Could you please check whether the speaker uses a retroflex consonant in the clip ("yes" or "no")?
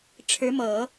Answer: yes